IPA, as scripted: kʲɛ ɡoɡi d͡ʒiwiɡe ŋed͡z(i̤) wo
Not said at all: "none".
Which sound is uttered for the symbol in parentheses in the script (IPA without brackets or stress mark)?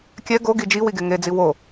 i